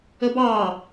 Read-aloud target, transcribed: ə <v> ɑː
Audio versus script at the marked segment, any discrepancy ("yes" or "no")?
yes